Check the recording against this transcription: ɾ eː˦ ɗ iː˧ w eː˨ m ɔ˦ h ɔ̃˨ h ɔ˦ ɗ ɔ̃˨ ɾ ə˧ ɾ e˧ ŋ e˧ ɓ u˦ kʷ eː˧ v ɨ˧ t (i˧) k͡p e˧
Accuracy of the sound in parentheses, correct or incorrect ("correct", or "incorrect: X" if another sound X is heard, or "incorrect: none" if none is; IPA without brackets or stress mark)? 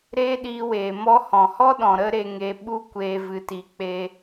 correct